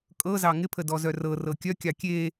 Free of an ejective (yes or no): no